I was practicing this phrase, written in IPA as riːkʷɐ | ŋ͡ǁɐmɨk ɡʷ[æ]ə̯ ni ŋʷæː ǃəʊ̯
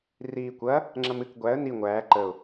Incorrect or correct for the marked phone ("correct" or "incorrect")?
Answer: correct